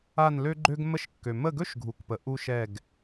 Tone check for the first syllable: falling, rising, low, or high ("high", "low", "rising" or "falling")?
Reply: falling